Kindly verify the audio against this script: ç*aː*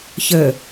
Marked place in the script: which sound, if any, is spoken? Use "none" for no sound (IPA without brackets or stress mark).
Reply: əː